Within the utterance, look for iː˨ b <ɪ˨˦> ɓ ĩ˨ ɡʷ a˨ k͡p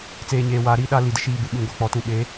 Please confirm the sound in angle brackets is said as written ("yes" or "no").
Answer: no